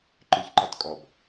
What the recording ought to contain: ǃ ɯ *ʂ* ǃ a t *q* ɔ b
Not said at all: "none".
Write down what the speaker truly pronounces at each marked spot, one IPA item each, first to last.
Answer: ç, kʼ

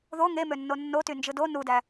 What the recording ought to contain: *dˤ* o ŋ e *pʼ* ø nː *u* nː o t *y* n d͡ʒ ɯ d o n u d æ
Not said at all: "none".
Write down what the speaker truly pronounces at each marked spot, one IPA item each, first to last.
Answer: ð, m, o, y

